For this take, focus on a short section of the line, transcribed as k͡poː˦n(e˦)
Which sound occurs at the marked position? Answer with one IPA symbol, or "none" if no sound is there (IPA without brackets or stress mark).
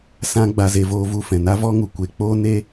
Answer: e˦